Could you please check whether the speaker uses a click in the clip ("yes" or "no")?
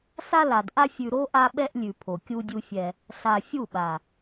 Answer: no